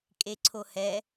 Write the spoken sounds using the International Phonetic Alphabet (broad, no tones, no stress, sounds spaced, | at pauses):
kʼ e ǀʰ o h ɛ